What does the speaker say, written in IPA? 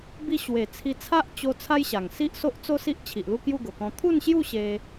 b i˧ ɕ w e˨˩ t͡sʰ i˧ t͡sʰ a˦ ʔ t͡ɕ o˧ t͡sʰ a˦ j ɕ a˨˩ ŋ s i˦ ʔ s o˦ ʔ t͡s o˦ s i˦ ʔ t͡ɕʰ i˨ ʔ l u˥˧ k j u˥˧ ɡ o˨˩ k ɔ̃˧ t̪ʰ u˥˧ n ɕ j u˥˧ ɕ e˧

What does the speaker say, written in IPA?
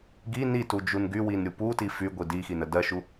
ɡ i n i t u d͡ʒ u n ɡ y w i n ɾʲ u p u t i f y ɡʷ i d i x i n ə d ɜ ʃ u

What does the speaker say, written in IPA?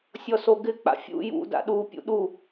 sʲ ɔ s o ɡ ɪ k͡p a̰ fʲ ṵ j ṵ d a̰ ɗ u pʲ ṵ ɗ u

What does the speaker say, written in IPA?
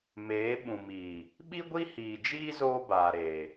m eː˨˦ ɓ ũ˨ m iː˨ | ɓ i˦ ɡʷ i˦ h iː˨ d͡ʒ iː˦ z oː˦ b aː˨ ɾ eː˨

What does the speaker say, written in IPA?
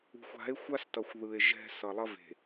ṳ˨ xʷ a̤˨˦ e̯ xʷ a˦ s t ʌ˨ xʷ ð ɯ˨ e̯ ʒ ɛ̤˦ s ʌ˨ lˠ ʌ˦ v e̤˨

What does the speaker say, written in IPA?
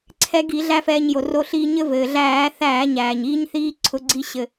ǀʰ ɛ˧ ɡ i˧˩˧ ɮ æ˦˥ f ɛː˧ ɲ j o˩ r o˧ ɬ iː˧ ɲ ɘ˦˥ v ɘː˩ ɮ æː˧˩˧ θ æː˧˩˧ ɲ æː˩ ɲ iː˦˥ ɲ θ iː˦˥ ǀʰ ʊ˧ ɡ͡ǀ i˧ ɕ ɘ˩

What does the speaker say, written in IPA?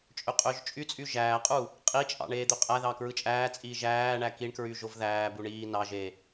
t͡ʃʼ ø qʼ ø ʒ t͡ʃʼ y t͡sʼ y ʒ æː qʼ u | qʼ i t͡ʃʼ ɑ̰ ɳ eː d̪ ø qʼ æ ð ɑ k ɹ ɯ t͡ʃʼ æː t͡sʼ iː ʒ æː ɳ æ k i ɳ k ɹ y ʒ o v ð æː b u ɳ iː n ɑ ʒ e

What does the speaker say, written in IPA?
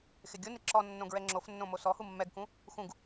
x ɪ ɡʲ ʊ n ɪ ǁ ɔ nː õ ɡ ɹ ɛ ŋ͡ǁ o f nː õ m o s ɔ h u mː ɛ ɡ k ũ | x ũ ɡ

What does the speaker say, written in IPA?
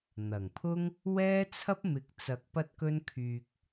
n̪ ɐ˨˩ ŋ pʰ ʊ˥ ŋ | w ɛː˥ t͡sʰ ɐ˥ p̚ m ɪ˨˥ k̚ t͡s ɐ˧ k̚ p ɐ˥ t̚ k ɵ˥ n kʰ yː˧ k̚

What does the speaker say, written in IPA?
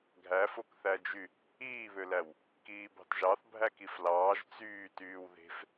ɡʱ æ f o k θ æ d͡ʒ y | iː β ø l æ w | k iː b ɑ̤ t ʒ ɑ θ bʱ æ k i f l ɑː ʒ t͡s yː t yː w ð e̤ f

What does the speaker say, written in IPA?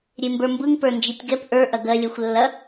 ɾʲ e m b ə˞ m b ɯ ŋ p ə˞ n d͡ʒ i tʲ ɡ ɛ p ʔ ə˞ ʔ ɐ ɡ ɜ lʲ ɜ xʷ lː ɐ

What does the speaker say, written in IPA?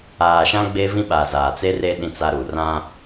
aː˨ ʃ ã˦ ɡ͡b e˦ v ĩ˦ ɓ a˨ z aː˨ t͡s e˦ r e˦ ɗ ĩ˦ t͡s a˦ ɾ u˨ r ã˦

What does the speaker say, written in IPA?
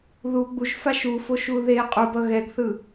ð u ɡ͡b u ʒ f a ʃ u f o ʃ u ð e qʼ u b ʌ ɣ ɛ ɡ θ ɯ

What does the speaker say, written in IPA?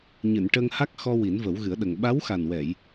ɲ ɨ˨˩˨ n ʈ ə˧ ŋ h a˦˥ k̚ x ɔ˧ w i˨˩˦ n v ə˨˩˦ w ɣ ɨ˨˩˦ ə̯ ɗ ə˨˩ ŋ ɓ a˧˥ w x a˨˩ n w ɛ˨˩˨ j

